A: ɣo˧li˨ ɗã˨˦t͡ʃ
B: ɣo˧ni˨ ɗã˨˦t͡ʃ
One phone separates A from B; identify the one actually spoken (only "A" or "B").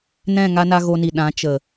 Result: B